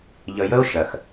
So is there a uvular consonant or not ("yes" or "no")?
no